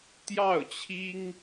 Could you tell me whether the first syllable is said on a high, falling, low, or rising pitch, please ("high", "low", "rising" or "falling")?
falling